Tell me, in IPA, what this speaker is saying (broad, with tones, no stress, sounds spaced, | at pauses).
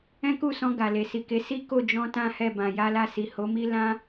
ɛ̃˦ k u˦˨ s ɔ̃˧ ɡ a˨ l e˨ s i˨ k e˨˦ s i˦ k o˦˨ d͡ʒ ɔ̃˧ t ã˦ h ɛ˦˨ b ã˨ j a˧ l a˧ s i˨ h o˨˦ m i˦ l ã˧